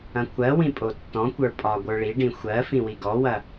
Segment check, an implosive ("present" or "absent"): absent